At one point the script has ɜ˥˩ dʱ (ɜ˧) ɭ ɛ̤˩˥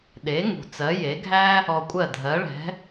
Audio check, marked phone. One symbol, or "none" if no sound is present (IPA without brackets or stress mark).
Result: ɜ˩˥